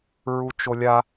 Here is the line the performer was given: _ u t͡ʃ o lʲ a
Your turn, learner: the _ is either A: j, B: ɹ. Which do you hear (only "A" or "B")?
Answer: B